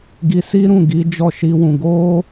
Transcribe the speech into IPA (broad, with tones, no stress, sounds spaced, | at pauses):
ɡ i˧ s i˦ ɾ ũ˦˨ ɡ i˨˦ d͡ʒ ɔ˦˨ ʃ i˧ w ũ˨ ɡ o˧